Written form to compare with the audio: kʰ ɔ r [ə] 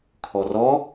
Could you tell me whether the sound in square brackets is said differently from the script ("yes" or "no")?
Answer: yes